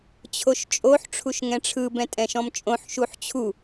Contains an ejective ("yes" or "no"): yes